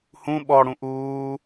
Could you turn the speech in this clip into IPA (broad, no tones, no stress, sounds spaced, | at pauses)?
h ũ ɓ ɔ ɽ ũ ʔ uː